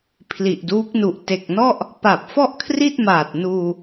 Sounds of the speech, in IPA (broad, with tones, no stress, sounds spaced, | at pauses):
pʰ l i˨˩ ʔ d uː˦˥ k̚ n u˨˩ ʔ t e˨˩ k̚ n ɔ˥˩ ʔ | p a˨˩ p̚ f ɔ˥˩ ʔ kʰ r i˥˩ t̚ m aː˨˩ t̚ n uː˧